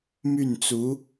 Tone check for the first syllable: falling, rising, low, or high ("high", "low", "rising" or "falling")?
falling